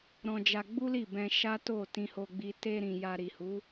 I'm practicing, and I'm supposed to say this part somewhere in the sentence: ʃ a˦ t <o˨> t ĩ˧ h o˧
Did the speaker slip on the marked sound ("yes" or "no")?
yes